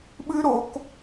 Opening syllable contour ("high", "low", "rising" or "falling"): high